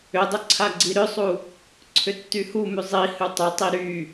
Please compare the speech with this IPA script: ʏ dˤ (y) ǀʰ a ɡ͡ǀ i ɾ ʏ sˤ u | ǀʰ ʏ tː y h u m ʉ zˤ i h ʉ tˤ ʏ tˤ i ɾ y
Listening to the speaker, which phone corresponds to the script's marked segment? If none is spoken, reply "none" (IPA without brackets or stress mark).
ʏ